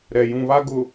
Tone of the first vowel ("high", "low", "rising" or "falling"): low